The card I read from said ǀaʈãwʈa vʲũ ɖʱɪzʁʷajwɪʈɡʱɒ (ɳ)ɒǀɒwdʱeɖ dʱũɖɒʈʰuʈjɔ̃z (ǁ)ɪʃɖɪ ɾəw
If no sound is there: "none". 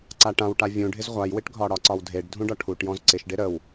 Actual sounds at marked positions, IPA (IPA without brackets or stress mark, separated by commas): ɽ, ǀ